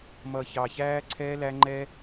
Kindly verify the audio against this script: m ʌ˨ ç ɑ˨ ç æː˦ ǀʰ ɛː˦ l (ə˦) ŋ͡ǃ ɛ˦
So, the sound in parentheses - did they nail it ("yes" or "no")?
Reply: no